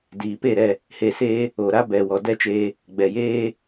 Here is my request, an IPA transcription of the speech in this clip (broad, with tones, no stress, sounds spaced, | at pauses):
d iː˨ p e˦˨ ɾ ɛ˦˨ | h e˧ s eː˦ | o˨ ɾ a˦ b ɛ˨ w ɔ˨ d ɛ˦ t͡ʃ eː˧ | ɡ͡b ɛ˨ j eː˦